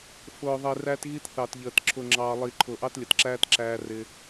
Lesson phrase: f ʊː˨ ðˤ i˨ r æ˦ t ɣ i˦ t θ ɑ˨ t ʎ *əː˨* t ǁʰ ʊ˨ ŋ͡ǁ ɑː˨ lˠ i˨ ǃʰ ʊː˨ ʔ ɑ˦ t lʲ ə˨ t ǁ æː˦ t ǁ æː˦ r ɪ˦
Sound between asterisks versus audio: correct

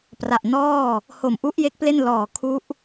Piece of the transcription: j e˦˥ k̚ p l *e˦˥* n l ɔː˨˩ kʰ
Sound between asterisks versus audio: incorrect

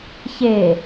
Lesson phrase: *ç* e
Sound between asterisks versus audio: correct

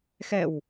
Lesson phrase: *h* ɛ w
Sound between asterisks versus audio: incorrect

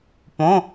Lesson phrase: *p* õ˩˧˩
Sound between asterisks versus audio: correct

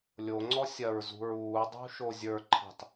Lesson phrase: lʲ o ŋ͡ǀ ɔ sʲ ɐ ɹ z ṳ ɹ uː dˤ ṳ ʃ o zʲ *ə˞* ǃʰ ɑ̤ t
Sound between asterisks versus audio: correct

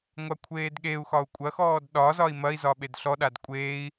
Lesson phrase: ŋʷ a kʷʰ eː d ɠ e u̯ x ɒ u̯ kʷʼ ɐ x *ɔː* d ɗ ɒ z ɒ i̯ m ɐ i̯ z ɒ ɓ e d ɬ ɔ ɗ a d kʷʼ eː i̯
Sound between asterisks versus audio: correct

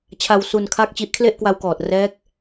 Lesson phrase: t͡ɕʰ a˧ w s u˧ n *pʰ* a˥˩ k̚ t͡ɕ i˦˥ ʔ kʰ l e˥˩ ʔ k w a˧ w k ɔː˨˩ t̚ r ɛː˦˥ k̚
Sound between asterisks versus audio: incorrect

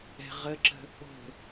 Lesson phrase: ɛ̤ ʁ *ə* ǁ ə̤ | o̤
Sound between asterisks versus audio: correct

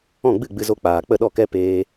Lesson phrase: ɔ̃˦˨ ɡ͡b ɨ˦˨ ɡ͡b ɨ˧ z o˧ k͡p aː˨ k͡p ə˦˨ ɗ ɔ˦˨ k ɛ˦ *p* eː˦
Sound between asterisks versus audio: correct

